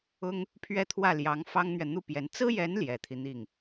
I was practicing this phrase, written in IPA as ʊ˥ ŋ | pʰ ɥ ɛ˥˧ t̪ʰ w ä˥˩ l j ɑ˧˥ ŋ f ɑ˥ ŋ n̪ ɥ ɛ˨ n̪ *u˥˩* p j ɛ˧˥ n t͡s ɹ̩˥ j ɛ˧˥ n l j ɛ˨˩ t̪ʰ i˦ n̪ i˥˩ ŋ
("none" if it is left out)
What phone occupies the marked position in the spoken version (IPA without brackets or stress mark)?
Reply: u˥˩